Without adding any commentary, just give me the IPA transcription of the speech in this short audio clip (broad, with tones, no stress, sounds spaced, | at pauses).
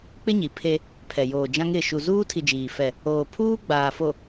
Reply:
k͡p ɪ˦ ɲ i˨ pʰ e˦ | pʰ ɛ˨ j oː˨ d͡ʒ ã˦ ŋ ɪ˦˨ ʃ u˨ z uː˦ tʰ i˨ d͡ʒ iː˨ f ɛ˦˨ | oː˨ pʰ uː˦ ɡ͡b aː˨ f o˨